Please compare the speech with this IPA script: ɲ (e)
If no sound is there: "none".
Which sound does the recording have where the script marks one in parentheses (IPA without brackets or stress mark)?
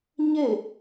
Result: e